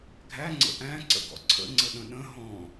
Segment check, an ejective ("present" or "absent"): absent